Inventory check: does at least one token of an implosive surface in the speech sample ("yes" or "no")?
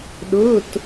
yes